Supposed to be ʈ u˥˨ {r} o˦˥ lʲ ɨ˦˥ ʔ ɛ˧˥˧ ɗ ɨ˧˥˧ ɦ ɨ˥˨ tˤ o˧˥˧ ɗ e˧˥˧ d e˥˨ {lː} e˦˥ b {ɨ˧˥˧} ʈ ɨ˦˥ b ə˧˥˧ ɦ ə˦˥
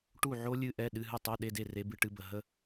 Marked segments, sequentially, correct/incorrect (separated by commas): incorrect, incorrect, incorrect